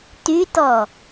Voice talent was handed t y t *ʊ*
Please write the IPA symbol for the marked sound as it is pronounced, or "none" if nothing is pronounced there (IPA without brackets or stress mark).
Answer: ɔ